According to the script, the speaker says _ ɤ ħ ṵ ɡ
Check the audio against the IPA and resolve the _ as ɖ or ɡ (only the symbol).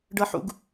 ɖ